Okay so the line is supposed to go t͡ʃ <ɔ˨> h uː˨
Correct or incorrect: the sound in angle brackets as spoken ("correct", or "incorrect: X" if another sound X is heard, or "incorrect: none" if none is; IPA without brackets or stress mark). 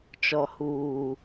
correct